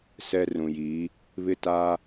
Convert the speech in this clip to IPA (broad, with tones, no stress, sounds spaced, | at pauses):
s ɛ˦ r ũ˨ j iː˨˦ | β ɪ˦ t aː˦